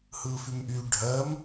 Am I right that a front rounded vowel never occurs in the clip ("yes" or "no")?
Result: no